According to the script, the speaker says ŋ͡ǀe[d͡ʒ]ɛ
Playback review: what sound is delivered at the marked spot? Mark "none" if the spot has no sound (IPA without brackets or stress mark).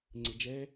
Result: d͡ʒ